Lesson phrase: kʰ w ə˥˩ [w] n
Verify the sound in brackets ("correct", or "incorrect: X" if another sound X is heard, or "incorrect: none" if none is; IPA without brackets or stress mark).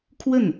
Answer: incorrect: none